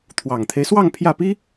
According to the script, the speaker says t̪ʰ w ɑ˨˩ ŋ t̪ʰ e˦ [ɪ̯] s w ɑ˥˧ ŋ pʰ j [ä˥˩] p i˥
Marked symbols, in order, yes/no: yes, yes

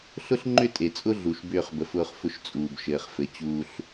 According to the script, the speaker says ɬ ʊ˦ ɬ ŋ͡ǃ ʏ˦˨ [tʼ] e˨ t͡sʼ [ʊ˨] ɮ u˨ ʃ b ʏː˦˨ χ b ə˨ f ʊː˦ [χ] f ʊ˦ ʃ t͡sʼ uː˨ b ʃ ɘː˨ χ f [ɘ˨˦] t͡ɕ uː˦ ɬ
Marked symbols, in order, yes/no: yes, no, yes, yes

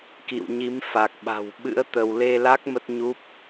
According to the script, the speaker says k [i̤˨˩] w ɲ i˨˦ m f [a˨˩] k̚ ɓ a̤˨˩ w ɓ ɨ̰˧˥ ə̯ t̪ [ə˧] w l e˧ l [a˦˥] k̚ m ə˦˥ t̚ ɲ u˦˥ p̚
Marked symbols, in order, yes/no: no, yes, yes, yes

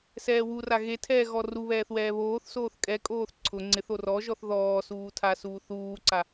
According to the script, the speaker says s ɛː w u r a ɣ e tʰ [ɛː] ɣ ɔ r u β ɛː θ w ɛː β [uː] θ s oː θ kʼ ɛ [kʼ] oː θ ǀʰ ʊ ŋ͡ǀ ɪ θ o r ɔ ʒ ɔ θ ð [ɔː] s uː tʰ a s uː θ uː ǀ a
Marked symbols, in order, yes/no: yes, no, yes, yes

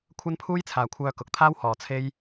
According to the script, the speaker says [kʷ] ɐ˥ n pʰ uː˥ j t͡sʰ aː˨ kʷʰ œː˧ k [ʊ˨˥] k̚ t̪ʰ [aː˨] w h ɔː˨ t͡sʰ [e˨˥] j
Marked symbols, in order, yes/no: no, yes, no, no

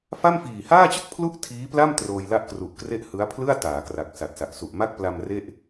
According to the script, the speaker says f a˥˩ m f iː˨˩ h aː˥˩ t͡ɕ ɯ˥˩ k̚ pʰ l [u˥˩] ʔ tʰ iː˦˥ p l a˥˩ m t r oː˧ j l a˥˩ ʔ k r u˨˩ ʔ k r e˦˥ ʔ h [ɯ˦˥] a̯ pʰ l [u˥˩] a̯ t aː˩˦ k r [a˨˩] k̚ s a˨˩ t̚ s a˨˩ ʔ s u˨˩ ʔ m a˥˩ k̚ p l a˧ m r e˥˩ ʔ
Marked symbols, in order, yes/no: yes, yes, no, yes

